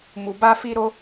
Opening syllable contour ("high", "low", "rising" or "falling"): low